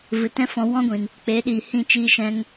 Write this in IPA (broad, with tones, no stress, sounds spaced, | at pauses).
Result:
v ɨ˨ t ɛ̃˦ f ɔ̃˧ w ɔ̃˦ ɡʷ ĩ˨ n | k͡p eː˨˦ ɗ iː˨ h ĩ˦˨ t͡ʃ iː˧ ʃ ɛ̃˧ ŋ